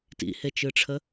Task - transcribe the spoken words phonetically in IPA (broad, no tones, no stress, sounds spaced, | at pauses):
t ḭ h e t͡ʃ ɯ ʈ͡ʂʰ ə